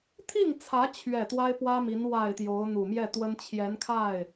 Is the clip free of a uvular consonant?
yes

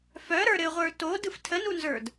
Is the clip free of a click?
yes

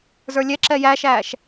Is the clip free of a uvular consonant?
yes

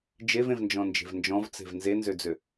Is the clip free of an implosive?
yes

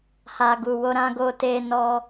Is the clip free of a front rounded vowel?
yes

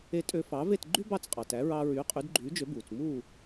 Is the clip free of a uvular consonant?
no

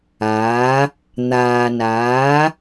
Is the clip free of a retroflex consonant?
yes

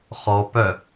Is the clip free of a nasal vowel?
yes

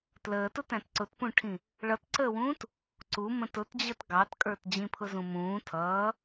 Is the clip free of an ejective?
no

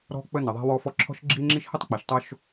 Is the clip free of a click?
no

